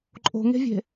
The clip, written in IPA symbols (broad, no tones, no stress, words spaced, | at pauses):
ǃʼo̤ŋe̤vʲe̤